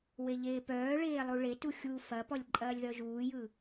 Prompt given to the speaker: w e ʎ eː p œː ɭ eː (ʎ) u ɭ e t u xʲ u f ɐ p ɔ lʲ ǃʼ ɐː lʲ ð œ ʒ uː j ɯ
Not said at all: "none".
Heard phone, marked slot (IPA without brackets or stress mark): lˠ